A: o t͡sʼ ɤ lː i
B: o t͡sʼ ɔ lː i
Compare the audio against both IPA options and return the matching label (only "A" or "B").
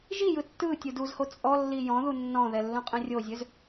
B